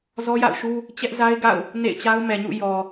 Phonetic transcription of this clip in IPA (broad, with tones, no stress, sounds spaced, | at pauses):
z ɔ˦ j a̰˦˨ ʊ̯ ʃ u˦ | t͡ɕ ɛ˦ ʔ z a˦ ɪ̯ ɡ a̰˦˨ ʊ̯ | n ḛ˦˨ ɪ̯ t͡ɕ a˦ ʊ̯ m ɛ˨ ɲ ṵ˦˨ j ɔ˨